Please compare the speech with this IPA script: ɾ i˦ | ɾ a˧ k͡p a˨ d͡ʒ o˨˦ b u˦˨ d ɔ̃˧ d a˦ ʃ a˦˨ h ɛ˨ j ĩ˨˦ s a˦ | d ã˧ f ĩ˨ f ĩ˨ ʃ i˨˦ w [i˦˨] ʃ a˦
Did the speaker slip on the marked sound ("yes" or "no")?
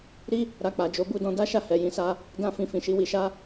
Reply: yes